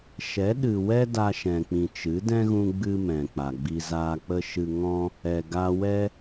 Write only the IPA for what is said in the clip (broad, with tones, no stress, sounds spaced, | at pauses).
ʃ ɛ˨˦ ɗ ɨ˨ w ɛ˦ d a˧ ʃ ɛ̃˨ k͡p ĩ˨ t͡ʃ ɨ˨˦ d ɛ̃˦ ɣ ũ˧ ɡ͡b ɨ˦ m ɛ̃˨ k͡p a˨ ɡ͡b i˧ z aː˧ k͡p ə˦ ʃ ɨ˧ ŋ ɔ̃˦ | ɛ˨ ɡ a˧ w ɛ˦